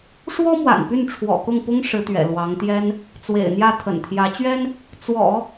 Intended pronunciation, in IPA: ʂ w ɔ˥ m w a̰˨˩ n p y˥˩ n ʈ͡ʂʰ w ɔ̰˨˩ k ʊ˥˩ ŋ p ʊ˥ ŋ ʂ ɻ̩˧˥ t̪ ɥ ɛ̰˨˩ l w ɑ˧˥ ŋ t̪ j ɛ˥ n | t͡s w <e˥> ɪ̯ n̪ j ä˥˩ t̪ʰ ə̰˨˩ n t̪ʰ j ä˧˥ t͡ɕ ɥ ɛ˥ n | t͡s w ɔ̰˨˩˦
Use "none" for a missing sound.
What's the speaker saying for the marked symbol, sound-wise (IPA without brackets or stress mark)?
ḛ˨˩